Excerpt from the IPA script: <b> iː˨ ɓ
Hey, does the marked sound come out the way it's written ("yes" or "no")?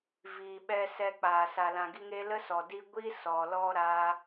no